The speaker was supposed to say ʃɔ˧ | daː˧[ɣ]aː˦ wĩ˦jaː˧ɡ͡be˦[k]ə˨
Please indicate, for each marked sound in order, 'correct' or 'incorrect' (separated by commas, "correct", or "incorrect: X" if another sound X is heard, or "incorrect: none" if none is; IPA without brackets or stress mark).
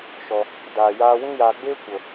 incorrect: j, incorrect: kʷ